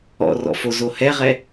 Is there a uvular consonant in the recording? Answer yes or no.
yes